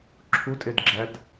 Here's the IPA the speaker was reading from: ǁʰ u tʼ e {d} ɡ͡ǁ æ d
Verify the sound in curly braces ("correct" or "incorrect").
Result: correct